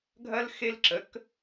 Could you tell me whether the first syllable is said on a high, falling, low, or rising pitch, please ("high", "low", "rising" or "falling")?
high